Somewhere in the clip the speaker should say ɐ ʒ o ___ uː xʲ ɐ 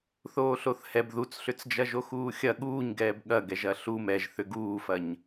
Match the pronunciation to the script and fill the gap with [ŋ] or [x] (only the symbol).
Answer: x